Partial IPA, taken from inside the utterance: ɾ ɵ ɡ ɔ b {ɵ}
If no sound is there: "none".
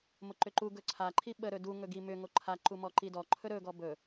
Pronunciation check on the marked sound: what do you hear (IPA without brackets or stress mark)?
ɵ